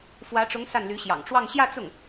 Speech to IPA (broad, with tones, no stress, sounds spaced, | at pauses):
f w ä˧˥ ʈ͡ʂ ʊ˧˥ ŋ s a˥˩ n l y˧˥ ɕ j ɑ̰˨˩ ŋ ʈ͡ʂ w ɑ˥˧ ŋ ɕ j ä˥˧ t͡s ʊ˥˩ ŋ